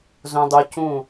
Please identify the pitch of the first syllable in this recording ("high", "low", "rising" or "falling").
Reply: low